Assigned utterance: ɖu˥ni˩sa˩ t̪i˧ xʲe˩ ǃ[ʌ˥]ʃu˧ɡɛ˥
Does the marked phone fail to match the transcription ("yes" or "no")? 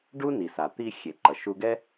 yes